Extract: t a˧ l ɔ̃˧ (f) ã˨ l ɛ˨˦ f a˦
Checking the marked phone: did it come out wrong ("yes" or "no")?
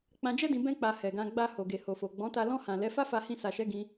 yes